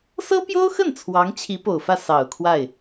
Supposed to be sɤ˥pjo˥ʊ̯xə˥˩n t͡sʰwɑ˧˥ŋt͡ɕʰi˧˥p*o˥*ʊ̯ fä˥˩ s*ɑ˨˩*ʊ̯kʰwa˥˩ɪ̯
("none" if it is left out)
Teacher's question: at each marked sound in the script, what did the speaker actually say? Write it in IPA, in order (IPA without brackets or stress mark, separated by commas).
o˨˩, ɑ˨˩